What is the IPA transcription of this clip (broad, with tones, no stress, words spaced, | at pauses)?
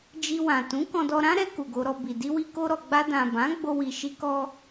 d͡ʒi˧wã˨ tũ˨˦kɔ̃˧dɔ˧ ɾã˦ɾɛ˧ ku˨ɡo˧ɾɔ˧bi˨ di˧wi˧ko˧ ɾɔ˨ɡ͡ba˧ dã˨ bã˨˦ɡ͡bo˧wi˨ ʃi˧kɔ˧